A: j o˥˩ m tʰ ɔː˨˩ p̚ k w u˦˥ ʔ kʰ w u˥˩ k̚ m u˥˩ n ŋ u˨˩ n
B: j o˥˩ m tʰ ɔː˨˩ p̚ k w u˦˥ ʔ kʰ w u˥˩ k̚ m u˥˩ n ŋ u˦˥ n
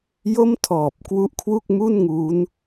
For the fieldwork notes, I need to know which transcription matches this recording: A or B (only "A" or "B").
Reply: B